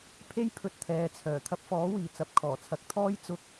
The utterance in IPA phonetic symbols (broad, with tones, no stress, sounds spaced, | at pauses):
pʰ e˥ j pʰ ɵ˧ t̚ t̪ʰ ɛː˨˧ t͡sʰ œː˨˩ t̪ʰ ɐ˧ p̚ f ɔː˨˥ w iː˨˩ t͡s ɐ˨˥ p̚ kʰ ɔː˨˩ t͡sʰ ɐ˨˥ k̚ t̪ʰ ɔː˥ j t͡s ʊ˧ k̚